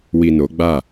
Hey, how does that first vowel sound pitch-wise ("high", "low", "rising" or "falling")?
low